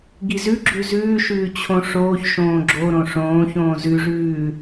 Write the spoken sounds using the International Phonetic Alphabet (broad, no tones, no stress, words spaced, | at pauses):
ɡizʉ ɡ͡ǁʉzʉːʃʉː t͡ɕʰõʂoːç ʃõːɡ͡ǁo ɾõʂõː çõːzʉʐʉː